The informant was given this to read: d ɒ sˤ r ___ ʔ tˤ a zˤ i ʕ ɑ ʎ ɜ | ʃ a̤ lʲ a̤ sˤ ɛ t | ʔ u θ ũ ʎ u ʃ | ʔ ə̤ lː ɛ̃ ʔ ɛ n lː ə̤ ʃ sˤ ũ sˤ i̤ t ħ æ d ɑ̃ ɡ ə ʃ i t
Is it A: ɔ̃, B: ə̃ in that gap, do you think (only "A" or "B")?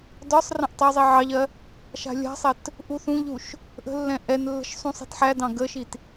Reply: B